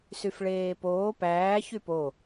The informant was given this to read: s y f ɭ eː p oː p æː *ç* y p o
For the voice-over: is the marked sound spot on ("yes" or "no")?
yes